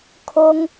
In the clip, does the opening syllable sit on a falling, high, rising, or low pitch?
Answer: high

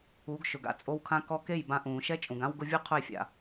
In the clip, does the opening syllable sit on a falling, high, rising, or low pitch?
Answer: rising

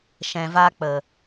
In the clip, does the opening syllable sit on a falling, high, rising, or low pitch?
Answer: low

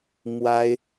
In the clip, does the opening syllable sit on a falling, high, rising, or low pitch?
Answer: high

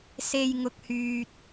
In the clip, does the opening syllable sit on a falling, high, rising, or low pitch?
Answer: low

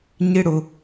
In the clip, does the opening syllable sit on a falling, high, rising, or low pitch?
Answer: high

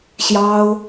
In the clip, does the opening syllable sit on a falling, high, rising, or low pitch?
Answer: high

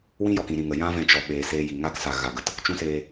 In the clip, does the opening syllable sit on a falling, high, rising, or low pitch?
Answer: high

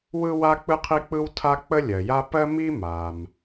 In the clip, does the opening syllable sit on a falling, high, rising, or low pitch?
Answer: high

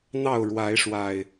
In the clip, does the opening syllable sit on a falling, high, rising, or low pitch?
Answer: falling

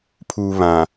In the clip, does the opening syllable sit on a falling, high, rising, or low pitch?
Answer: low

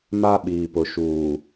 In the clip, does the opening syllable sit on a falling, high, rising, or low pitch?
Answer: high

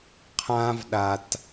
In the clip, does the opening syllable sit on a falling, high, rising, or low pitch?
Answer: high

